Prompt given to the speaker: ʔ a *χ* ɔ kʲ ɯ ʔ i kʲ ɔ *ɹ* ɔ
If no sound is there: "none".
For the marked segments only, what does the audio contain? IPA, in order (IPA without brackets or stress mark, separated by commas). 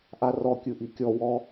r, w